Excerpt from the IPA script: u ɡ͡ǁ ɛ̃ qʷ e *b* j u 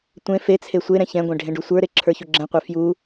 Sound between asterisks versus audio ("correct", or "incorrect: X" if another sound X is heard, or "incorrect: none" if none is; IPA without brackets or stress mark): incorrect: f